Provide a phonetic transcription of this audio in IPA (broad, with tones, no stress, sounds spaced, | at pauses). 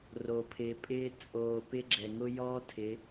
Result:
r oː˨ pʰ ɪː˨˦ pʼ ɪː˦ t͡sʼ oː˨ p ɪ˦ ɡ͡ǁ ɛ˨ ŋ ʊ˦ j ɔː˦ tʰ ɪ˨˦